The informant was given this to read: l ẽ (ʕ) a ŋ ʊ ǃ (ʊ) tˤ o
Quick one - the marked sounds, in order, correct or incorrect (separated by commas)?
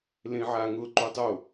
correct, incorrect